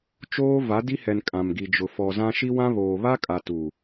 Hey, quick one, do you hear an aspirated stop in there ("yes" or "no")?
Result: no